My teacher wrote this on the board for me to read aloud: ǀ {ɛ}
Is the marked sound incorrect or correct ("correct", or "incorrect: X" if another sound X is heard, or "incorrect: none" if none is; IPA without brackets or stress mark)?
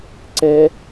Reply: correct